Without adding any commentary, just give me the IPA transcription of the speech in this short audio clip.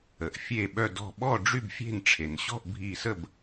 ə˩ ʔ fʲ e˧˩ ɓ œ˧˩ d ɔ̤˧˩ ɓ ɔ˥˩ ɖ͡ʐ y˥˩ b fʲ e̤˥˩ n ʈ͡ʂʰ e˩ n ɕ ɔ̤˥˩ ʔ bʱ i˧˩ s ə˥˩ b

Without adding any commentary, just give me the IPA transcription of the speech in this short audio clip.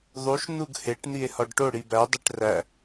ðˤ u ʃ n̪ u ɡ h e ʈ n̪ i e̯ h ɒ ɖ ʈ o ɽ i b æ dˤ e ʈ r æ

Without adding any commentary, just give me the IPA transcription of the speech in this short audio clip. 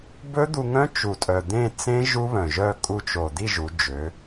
b ɵ˦˥ d̪ u˧ ŋ œ̃˦˥ t͡ʃ u˨˩ tʼ œ˨˩ d̪ ẽ˥˨ t͡s ẽ˦˥ ʒ u˦˥ β œ̃˨˩ ʒ œ˥˨ kʼ u˧ t͡ʃ o˨˩ d̪ i˥˨ ʒ u˩˧ d͡ʒ ø˩˧

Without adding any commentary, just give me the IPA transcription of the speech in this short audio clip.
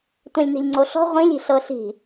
tʷ ɛ̃ lʲ n i̤ lʲ ŋ͡ǀ o ɬ ɔ̤ ʁʷ ĩ lʲ i̤ ɬ ɤ ɬ i̤

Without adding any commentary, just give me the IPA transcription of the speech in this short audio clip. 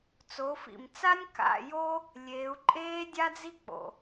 t͡s o˩˧ f ḭ˩ m t͡s a˥ nʲ k a̰˧ j o˥ | lʲ eː˩˧ u̯ ǃʼ eː˥ dʲ a˥ d͡z i˥ k͡p o̰˩

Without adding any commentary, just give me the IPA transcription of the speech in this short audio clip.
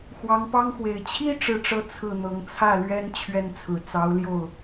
x w ɑ˧˥ ŋ p ɑ˥ ŋ x w e˨˩ ɪ̯ t͡ɕʰ i˥ ʈ͡ʂ ɻ̩˥˧ ʈ͡ʂ ɤ˥˧ t͡sʰ ɹ̩˥˩ n̪ ɤ˧˥ ŋ t͡sʰ ä˥˩ l ɥ ɛ˥ n t͡ɕʰ ɥ ɛ˥˩ n t͡sʰ ɹ̩˨˩ t͡s ɑ˧˥ ʊ̯ l j o˥˩ ʊ̯

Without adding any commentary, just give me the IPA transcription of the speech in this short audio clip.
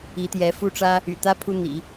i˧˥ t̪ j ɛ˧˥ f u˥ ʈ͡ʂ ä˥ | y̰˨˩ t̪ ä˥ pʰ u˥ n̪ ḭ˨˩˦

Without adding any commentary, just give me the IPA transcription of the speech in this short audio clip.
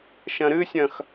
ʃ ɐ̃ ɾ ɨ sʲ ɐ̃ x

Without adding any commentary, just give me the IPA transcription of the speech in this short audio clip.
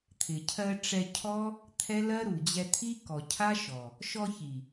t̪ʰ ɪ˨ cʰ ɜ˧ ʈ͡ʂ ɛ˧ cʰ ɔ˦ | t̪ʰ ɛ˦ l ɜ˦ ɾ u˨ d͡ʑ ɛ˧ t̪ʰ i˦ k ɔ˨ cʰ a˦ ʃ ɔ˨ | ʃ ɔ˧ ç i˨

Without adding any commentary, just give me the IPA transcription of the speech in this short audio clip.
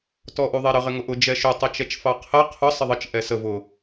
t ɔ ʔ u ðˤ ɛ ɾ ə ʁ ɪ ŋ ʊ ʔ ʊ d͡ʒ ɛ ʃ ʊ tˤ ʌ t͡ʃ ɛ t͡ʃ f ɑ qʰ ɛ qʰ ʊ sˤ ɪ ðˤ ə t͡ʃ ʔ ɛ s ə v ʊ

